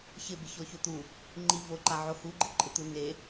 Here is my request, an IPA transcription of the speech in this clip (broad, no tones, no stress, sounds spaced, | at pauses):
ç ɪ b ɪ ç ɔ ç o t̪ u | ŋ͡ǃ i v o ǃ a ʕ o h u ɡ͡ǃ ɪ ǃʼ ɪ t̪ u n e